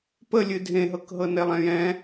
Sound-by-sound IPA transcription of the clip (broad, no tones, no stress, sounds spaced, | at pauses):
p ə lʲ ɨ dʱ ẽ ɦ ɤ k ɦ ɤ n e lˠ ɛ̃ j ɛ̃